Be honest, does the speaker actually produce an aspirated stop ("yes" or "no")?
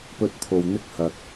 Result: yes